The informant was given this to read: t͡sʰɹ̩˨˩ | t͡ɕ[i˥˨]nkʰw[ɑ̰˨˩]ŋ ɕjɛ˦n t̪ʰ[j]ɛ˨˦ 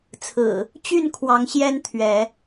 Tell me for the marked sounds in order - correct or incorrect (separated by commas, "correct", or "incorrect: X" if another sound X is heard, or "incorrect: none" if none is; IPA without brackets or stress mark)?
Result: incorrect: y˥˨, incorrect: ɑ˨˦, incorrect: ɥ